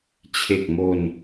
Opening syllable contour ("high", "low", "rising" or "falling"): low